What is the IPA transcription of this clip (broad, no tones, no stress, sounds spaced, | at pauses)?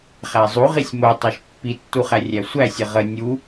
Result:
χ æ zˤ u ʁ i sʲ m o tˤ æ ʃ pː i tː u χ æ rʲ æ sʷ æ sʲ ə ʁ ə nʲ u